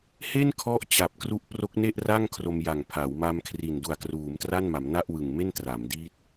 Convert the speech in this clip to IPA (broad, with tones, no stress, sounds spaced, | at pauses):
h e˥˩ n kʰ ɔ˦˥ ʔ t͡ɕ a˨˩ p̚ k r u˦˥ ʔ p r o˦˥ k̚ n e˥˩ ʔ r a˥˩ ŋ kʰ r o˧ m j a˨˩ ŋ pʰ a˩˦ w m a˧ m kʰ r i˨˩ n d u˨˩ a̯ k r uː˩˦ m t r a˥˩ n m a˩˦ m n a˥˩ ʔ w ɯ˨˩ ŋ m e˥˩ n t r a˩˦ m d iː˥˩ t̚